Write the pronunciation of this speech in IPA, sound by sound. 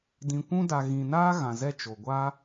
d ĩ˨ kʷ ũ˧ d a˨ ɣ ĩ˨ n aː˦ ɣ ã˨ z ɛ˦˨ t͡ʃ o˨ ɡʷ a˦

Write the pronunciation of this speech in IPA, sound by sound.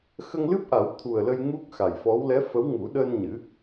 x ə˧ ŋ l ɨ˦˥ p̚ ʔ a˨˩˦ w t̪ʰ u˨˩ ə̯ l ə˧ j ŋ u˦˥ k̚ x a˨˩ j f ɔ˧˥ w l ɛ˧˥ f ə˧˥ w ŋ u˨˩˦ ɗ əː˧ n ɲ ɨ˨˩˦

